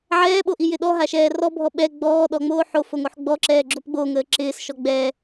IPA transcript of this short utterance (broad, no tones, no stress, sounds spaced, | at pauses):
ʕ ɛː ɓ o ʔ i j ɪ ɗ ɔ ɦ a ʃ ɛː r ɔ bʱ ɔ ɓ ɛ ɡ͡b ɔː ɗ ɔ ŋ͡m oː ħ o f o ŋ o ħ ɡ͡b ɔ ǁ ɛː ɡ͡ǁ o p ɡ͡b o ŋ əː ǁ ɪː s ʃ ɔ ɡ͡b ɛː